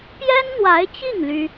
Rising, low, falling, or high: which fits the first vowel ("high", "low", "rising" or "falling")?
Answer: high